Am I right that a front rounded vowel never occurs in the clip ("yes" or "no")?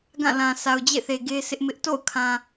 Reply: yes